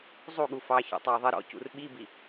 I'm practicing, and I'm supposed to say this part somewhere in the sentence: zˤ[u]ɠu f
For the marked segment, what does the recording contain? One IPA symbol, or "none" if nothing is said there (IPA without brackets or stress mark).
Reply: u